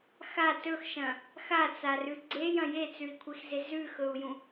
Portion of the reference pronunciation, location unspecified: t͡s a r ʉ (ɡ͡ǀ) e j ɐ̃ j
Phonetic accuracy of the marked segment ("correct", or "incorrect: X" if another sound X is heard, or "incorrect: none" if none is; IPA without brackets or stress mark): correct